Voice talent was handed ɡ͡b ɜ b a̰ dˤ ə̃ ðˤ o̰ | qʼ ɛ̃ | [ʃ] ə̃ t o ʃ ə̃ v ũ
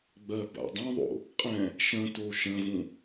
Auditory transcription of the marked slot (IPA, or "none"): ʃ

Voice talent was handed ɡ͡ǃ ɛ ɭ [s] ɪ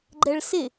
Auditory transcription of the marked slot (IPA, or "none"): s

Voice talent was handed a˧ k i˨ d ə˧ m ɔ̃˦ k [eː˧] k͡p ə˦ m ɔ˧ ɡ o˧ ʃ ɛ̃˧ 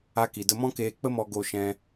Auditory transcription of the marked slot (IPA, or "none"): eː˧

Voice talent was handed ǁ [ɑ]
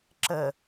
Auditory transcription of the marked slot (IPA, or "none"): ə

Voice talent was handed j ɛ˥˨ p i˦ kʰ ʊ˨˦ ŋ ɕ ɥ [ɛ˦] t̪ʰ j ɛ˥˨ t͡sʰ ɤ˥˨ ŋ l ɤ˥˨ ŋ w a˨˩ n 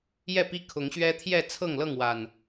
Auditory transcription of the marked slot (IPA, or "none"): ɛ˦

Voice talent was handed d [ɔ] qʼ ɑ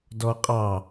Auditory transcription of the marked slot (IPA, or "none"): ɔ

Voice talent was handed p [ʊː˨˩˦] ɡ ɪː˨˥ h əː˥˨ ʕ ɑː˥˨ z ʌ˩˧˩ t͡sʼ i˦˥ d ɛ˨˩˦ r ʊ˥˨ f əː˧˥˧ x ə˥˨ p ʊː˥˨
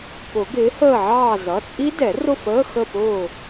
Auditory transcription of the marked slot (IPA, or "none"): ʊ˨˩˦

